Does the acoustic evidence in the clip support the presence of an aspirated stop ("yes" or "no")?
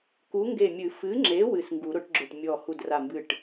no